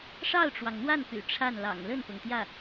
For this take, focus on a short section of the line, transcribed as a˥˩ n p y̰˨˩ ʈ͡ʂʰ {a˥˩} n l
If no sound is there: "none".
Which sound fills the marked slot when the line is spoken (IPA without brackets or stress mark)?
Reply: a˥˩